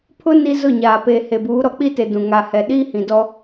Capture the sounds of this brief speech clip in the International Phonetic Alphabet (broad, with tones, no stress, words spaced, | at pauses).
pʰʊ˦ ni˦zʊ˦˨ɲaː˨ peː˨ he˨buː˨˦ ɾɔ˨k͡pi˦te˨ dũ˨ ŋa˨hɛ˨ ɗiː˦hĩ˨dɔ˦